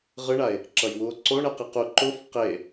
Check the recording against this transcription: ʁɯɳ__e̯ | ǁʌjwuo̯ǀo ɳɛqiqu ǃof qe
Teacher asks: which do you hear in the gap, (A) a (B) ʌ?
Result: A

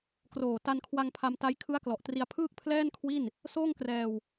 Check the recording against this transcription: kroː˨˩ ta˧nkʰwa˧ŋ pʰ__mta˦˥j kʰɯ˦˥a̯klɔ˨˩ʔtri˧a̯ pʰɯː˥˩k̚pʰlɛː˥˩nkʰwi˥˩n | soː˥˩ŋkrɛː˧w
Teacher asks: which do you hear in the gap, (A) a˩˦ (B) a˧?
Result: B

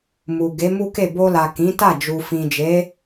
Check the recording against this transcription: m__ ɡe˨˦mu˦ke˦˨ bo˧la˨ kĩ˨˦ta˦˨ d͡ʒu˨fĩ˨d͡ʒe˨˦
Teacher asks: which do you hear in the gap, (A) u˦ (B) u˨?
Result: B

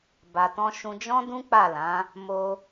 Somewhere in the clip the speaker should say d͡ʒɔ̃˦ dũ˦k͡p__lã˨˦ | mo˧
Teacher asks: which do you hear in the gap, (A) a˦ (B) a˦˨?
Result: B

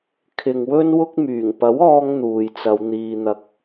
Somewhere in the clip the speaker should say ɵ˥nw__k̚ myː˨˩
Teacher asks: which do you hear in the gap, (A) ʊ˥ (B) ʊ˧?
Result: A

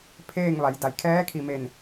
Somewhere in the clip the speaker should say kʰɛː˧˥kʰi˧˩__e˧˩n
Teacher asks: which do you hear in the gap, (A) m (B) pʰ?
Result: A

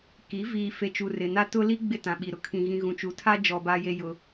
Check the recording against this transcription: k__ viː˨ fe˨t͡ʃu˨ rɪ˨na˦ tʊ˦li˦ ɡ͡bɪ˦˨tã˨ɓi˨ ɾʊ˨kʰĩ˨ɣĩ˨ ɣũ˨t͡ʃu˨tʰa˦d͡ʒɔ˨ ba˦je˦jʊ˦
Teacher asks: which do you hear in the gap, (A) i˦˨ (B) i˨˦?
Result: B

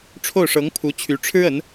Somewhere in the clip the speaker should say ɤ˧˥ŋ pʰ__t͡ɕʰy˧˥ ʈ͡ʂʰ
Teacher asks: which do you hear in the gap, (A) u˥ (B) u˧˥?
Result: B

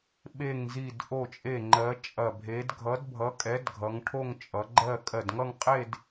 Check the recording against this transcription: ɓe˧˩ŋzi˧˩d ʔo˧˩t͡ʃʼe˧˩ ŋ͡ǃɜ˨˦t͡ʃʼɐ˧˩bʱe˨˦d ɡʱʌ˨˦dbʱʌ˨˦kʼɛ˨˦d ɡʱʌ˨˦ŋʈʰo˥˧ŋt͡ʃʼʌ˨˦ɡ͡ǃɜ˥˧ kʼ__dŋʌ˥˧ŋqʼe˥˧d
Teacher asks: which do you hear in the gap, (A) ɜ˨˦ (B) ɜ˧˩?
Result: B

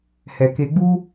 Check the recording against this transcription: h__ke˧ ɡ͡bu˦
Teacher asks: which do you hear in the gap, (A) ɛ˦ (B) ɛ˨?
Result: B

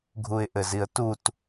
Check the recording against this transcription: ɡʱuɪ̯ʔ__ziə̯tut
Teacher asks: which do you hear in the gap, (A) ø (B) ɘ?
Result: B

